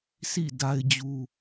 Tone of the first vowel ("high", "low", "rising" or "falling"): falling